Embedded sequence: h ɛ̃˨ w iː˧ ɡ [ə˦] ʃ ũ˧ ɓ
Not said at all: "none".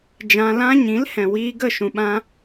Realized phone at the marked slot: ə˦˨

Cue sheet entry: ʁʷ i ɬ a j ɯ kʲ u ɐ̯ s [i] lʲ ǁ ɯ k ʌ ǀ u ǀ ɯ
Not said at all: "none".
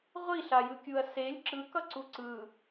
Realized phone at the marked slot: e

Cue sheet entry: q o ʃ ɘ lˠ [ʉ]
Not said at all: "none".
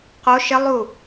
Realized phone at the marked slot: u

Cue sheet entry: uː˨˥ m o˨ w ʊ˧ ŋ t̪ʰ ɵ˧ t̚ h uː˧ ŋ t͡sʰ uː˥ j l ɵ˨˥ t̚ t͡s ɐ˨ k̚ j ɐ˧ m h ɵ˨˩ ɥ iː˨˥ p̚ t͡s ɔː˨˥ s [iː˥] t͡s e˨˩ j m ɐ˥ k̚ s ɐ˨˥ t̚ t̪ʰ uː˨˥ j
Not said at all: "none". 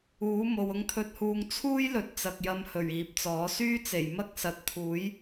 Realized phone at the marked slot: yː˥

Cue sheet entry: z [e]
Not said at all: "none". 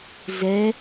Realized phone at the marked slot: ɛ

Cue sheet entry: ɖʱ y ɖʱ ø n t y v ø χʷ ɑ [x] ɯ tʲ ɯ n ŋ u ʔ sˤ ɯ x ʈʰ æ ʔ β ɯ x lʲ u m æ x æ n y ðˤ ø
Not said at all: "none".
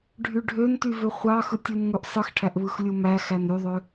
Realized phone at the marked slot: x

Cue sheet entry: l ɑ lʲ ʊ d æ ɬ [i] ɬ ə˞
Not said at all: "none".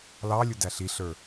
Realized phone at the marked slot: i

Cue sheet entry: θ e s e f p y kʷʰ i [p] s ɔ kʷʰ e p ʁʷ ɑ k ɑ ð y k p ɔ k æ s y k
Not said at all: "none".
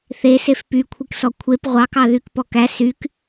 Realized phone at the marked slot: k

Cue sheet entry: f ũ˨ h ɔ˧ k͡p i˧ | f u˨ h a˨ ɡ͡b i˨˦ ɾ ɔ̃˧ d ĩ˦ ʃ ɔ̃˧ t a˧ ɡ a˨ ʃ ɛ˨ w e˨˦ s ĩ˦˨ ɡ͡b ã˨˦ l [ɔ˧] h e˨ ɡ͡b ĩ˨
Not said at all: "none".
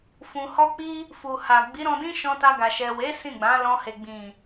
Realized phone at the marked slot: ɔ̃˧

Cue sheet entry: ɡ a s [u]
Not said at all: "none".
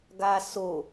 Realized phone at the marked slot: o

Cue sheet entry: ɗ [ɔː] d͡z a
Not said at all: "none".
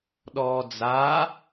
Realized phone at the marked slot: ɔː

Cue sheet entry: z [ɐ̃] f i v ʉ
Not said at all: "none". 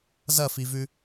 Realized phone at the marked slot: ɐ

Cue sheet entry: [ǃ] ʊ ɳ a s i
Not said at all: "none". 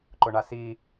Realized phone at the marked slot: ǃ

